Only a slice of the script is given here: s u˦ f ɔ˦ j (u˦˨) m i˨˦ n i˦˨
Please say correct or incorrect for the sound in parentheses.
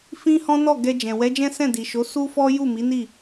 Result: correct